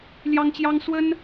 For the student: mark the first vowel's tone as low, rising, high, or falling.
high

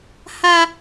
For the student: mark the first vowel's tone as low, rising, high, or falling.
high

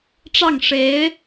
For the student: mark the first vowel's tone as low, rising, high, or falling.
falling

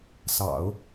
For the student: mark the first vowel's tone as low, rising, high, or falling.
low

